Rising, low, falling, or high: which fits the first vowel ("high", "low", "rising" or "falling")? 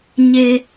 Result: high